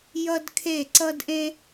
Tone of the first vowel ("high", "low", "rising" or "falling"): high